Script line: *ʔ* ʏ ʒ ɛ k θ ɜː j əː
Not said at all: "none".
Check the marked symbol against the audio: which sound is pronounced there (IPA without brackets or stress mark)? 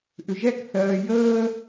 ʔ